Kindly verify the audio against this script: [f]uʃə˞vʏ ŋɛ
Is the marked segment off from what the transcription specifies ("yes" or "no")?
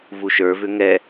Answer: yes